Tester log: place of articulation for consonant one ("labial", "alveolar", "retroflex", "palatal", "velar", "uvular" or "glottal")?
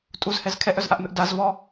alveolar